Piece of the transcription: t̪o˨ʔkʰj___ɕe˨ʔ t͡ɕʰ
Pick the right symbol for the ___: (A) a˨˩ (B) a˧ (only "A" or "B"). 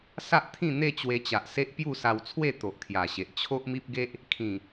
A